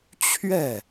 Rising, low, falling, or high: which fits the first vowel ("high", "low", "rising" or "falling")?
falling